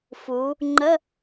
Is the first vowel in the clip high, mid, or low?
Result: high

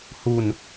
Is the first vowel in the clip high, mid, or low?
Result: high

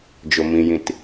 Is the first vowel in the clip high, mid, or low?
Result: mid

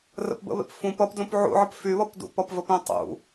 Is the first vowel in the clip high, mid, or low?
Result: mid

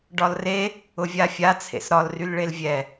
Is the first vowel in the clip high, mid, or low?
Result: low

